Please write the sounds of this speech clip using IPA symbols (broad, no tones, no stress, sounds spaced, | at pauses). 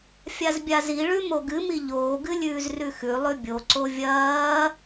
fʲ a z bʲ a z i ɭ ʉ m o ɡ ɨ m i ʎ oː ɡ ɨ lʲ ʉː z r ʉ x ʉ lˠ ʉ bʲ o ǀ o vʲ ɐː